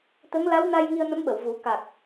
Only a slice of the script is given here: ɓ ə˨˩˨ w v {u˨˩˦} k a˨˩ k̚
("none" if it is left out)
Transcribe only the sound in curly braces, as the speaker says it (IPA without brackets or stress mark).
u˨˩˦